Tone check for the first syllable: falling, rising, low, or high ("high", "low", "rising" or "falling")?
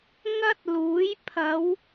high